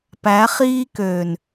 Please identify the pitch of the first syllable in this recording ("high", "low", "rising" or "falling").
rising